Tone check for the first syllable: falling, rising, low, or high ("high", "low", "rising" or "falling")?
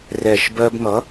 low